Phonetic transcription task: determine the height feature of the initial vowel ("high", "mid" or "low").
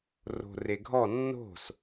mid